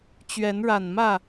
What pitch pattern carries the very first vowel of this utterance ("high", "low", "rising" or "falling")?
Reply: rising